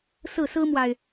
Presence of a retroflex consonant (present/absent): absent